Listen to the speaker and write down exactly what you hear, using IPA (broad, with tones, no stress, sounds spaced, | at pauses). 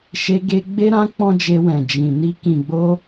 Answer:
ʃ e˧ ɡ e˧ ɡ͡b e˦ ɾ ã˦ k͡p ɔ̃˦ d͡ʒ e˧ w ɛ̃˨ d͡ʒ ĩ˨ n i˧ k ĩ˨ ɡ͡b o˧